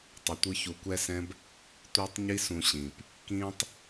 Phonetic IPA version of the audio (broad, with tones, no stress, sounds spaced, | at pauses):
tˤ ʌ˨ tʷ ɯ˧ ç u˨ kʷ ɛ˦ s ɛ̃˦ b | tʷ ɯː˧ tˤ ɲ i˦ s ũ˧ ɕ ĩː˨ p | k ĩː˦ tˤ